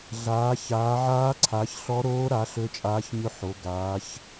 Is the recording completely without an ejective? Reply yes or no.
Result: no